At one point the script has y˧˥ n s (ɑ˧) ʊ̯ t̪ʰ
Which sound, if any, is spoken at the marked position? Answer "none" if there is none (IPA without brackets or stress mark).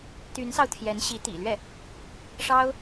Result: ɑ˧